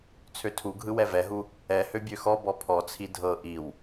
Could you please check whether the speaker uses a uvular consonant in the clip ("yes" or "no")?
no